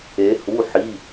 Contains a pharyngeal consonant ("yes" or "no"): yes